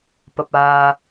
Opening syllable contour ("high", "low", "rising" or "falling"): low